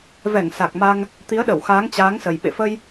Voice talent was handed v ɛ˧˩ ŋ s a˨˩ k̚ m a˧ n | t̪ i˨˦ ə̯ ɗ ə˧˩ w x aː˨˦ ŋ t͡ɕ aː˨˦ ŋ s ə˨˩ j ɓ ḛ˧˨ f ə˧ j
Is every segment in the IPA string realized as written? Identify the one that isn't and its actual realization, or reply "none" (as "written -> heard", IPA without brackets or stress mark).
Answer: n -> ŋ